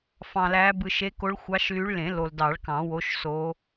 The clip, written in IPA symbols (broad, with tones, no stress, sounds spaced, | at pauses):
f ɑ̃˨ l æ˨˦ b ɯ˨ ʃ e˨˦ k o˨˦ ɭ xʷ ɑ˨˦ ʃ l y˨˦ ɭ l ẽ˨˩˦ l o˨ l d ɑ˨˩˦ ɭ k ɑ̃˨˩˦ w o˨˦ ʃ s o˨˦